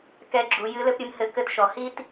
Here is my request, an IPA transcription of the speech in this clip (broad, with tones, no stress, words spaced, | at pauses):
kɛ˧ɡ͡ǁu˩˧ jɨ˧˥lɘ˥pɾʲɨ˧mhɘ˧˥ kɘ˧tʃɔ˩hi˥t